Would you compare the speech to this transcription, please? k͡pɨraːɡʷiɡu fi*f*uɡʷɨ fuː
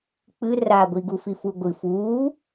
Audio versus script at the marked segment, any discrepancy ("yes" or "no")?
no